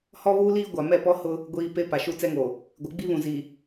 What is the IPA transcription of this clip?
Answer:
h ɔ˦ β uː˦ l iː˦ ɡʷ a˨ m ɛ˦˨ p ɔ˦ h ʊ˦ | ɡʷ iː˨ p e˦ p a˨ ʃ u˦ t͡s ɛ˦ ŋ o˨ | ɡʷ ɪ˨˦ ɡ͡b i˦ β ũ˨ z i˨

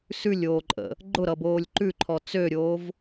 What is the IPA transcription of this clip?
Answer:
s ʉ lʲ oː ǃʼ ə̰ | ɡ͡ǃ ʊ ɾ ʌ b oː lʲ ǃ ʉ ǃʰ ɔ t͡s ø ɾʲ oː v

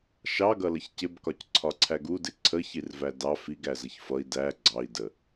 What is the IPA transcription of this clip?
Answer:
ʃ ɑ ɡ ʌ l ʌ ç c ɪ b k ɒ c ǀʰ ɒ ǀʰ æ ɡ u d ɪ ǀʰ ə ç i r v æ d ɑ f i ɡ æ z ə ç f ʌ i̯ d æ ɡ͡ǀ ɑ i̯ d ə

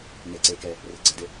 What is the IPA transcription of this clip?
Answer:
n e ǀ e k ɛ | r ɪ ɡ͡ǀ ə d ɪ

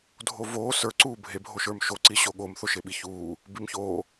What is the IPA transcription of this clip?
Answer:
dʱ o v oː s ə˞ ǀ uː bʱ e bʱ o ʃ ə˞ m ʃ o ǀ i ɕ o ɠ o m θ o ʃ e ɓ i ç uː | b i m ç oː

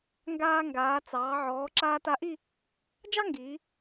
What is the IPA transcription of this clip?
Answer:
ŋ ɡ aː˧ ŋ ɡ aː˩˧ t͡s ɑː˩˧ ʕ ɔː˩˧ ǁ aː˧ t a˧ ʔ i˥˧ | d͡ʒ ɑ˥ ŋ ɡ iː˩˧

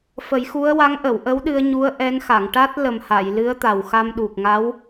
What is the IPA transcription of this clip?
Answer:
f ə˨˩˦ j x u˧˥ ə̯ w a˧˥ ŋ ʔ ə˨˩˨ w ʔ ə˧˥ w ɗ ɨ˧ ə̯ ɲ u˧˥ ə̯ ʔ ɛ˧˥ n x a˨˩˨ ŋ ʈ a˦˥ t̚ l ə˨˩ m h a˨˩˨ j l ɨ˧˥ ə̯ t̪ a˨˩ w x a˧ m ɗ u˨˩ k̚ ŋ a˧˥ w

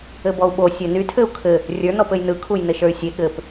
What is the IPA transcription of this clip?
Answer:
ɘ b ɔ u̯ ɓ o sʲ ɘ n y tʰ ɘ u̯ kʰ ɘ | rʲ ə˞ n ɔ p ɘ j n ɯ kʰ u j n ɘ ʃ ə˞ y̯ sʲ e ɠ ɘ p

